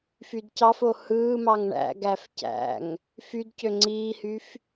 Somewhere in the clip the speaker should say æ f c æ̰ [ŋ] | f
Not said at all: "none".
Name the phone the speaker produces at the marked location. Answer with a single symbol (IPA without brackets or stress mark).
ŋ